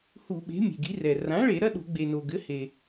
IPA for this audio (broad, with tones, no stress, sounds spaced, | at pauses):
h u˧˩˧ ɓ e̤˩˥ mʲ e̤˩ ɡ i˩˥ r ɛ˩ r ã˩˥ ɭ e˧˩˧ ɾ ɐ˧˥˧ ɗ o̤˧˩˧ ɡ͡b e˩ n o˩ ɡ ɘ˩˥ h e˩